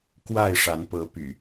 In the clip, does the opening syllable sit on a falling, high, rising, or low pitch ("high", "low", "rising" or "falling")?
falling